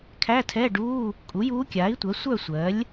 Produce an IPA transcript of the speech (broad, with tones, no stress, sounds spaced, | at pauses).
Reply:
kʰ æ˧˥˧ tʰ ɛ˧˥˧ ɖ uː˧˥˧ | kʼ u˩˥ j uː˧˥ kʲ aː˩˥ i̯ tʷ ɜ˩˥ sʷ œ˥˨ sʷ ɜ˩˥ lʲ